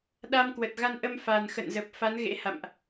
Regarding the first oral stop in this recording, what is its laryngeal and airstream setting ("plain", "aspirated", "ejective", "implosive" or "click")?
implosive